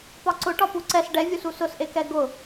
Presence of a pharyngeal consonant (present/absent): absent